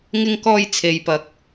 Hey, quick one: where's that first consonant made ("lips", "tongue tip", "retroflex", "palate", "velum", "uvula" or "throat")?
velum